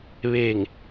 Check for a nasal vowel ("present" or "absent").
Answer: absent